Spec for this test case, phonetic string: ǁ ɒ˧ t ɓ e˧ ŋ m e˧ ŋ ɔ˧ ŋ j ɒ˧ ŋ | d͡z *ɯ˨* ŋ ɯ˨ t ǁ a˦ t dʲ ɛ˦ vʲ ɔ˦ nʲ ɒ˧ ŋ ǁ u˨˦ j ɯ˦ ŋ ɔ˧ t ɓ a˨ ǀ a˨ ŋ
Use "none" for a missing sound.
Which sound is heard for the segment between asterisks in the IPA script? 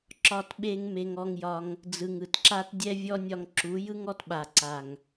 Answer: ɯ˨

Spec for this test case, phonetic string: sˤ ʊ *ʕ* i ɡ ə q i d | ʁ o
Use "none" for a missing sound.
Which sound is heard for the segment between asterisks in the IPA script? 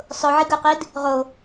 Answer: ʕ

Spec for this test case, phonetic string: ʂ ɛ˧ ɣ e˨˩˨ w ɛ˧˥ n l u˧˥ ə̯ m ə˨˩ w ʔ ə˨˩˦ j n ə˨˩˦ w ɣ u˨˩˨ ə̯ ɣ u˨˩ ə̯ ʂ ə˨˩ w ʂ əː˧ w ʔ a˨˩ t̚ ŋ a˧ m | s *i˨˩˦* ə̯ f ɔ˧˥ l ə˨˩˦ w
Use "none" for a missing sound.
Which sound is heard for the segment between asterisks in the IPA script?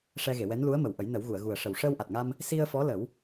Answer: i˧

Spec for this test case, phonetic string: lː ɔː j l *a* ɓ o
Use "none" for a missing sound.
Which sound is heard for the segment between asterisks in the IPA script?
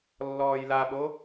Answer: a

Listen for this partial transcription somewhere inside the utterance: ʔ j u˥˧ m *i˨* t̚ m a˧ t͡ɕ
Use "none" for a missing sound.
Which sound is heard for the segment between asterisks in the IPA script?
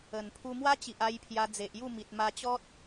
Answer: i˨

